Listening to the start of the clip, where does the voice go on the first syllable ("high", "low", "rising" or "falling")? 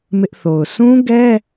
high